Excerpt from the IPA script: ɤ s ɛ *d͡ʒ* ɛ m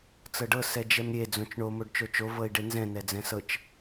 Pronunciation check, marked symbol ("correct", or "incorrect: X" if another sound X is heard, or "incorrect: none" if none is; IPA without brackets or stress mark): correct